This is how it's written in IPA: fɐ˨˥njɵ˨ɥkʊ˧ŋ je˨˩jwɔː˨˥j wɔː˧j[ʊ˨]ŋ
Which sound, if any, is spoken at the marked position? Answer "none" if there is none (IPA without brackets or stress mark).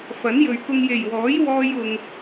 ʊ˨